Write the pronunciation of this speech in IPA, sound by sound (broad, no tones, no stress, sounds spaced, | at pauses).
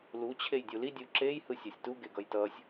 l u t͡ɕʰ e j dʲ u l i dʲ u ǁ e j h ɯ sʲ a sʲ t u ɡ e ɡ ʌ j t ʌ sʲ